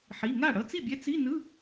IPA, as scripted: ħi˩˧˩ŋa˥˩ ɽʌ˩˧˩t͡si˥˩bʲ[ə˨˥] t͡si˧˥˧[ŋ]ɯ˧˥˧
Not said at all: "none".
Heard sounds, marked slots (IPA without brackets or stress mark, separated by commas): ɛ˨˥, n